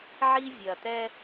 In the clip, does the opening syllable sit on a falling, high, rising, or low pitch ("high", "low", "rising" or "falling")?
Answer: high